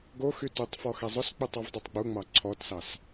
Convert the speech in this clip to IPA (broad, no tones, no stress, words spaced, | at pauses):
ɡoxy tʊtˤfɔ xɛzˤʊsk͡putˤ ɔvdˤitˤɡ͡buŋ͡mɑ ǀʰɔtsɑs